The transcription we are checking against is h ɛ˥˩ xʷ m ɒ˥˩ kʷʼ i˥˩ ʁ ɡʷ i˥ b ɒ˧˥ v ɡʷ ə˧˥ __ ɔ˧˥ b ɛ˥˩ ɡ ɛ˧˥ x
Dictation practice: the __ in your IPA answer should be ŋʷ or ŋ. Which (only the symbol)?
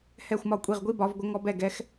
ŋ